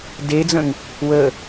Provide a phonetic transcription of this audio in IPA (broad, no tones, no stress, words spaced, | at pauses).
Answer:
ded͡zə̃ŋ | wə